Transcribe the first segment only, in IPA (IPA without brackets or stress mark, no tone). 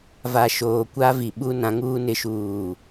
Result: v